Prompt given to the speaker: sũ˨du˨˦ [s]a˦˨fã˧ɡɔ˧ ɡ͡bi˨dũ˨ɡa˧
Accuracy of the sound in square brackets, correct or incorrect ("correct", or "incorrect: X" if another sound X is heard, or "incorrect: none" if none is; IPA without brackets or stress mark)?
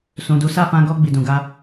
correct